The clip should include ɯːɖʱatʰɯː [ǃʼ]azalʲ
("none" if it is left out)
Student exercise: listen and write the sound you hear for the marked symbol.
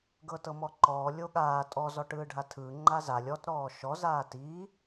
ŋ͡ǃ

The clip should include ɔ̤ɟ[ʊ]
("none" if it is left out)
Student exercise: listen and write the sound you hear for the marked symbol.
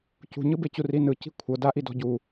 u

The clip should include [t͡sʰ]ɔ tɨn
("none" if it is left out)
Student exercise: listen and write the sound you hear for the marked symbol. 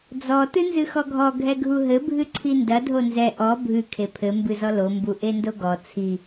d͡z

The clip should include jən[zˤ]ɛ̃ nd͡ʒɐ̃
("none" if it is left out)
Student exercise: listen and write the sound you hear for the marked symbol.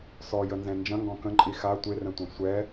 z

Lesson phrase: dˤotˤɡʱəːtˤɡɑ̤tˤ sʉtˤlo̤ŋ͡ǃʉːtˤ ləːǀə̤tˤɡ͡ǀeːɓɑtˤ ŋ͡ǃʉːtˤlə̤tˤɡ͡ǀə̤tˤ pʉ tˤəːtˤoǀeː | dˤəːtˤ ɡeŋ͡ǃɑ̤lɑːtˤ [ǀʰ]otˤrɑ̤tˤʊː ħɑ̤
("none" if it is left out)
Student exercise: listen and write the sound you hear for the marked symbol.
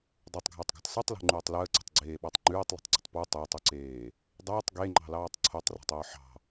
ǀʰ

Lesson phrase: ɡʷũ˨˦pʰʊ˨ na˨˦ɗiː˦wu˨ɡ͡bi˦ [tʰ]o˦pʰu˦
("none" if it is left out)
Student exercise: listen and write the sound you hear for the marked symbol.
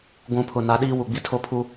tʰ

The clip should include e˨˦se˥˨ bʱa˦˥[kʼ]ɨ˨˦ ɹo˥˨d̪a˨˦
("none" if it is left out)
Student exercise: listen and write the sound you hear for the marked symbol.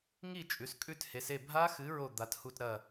x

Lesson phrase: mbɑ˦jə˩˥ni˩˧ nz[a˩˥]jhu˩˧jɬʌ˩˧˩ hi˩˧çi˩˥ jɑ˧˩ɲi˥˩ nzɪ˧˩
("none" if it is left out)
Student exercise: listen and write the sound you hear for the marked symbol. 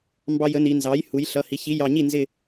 ɑ˩˥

